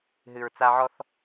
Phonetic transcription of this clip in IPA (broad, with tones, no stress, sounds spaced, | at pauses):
ɦ ɨ˨ ɹ t͡s a˦ ʕ ɔ˦ θ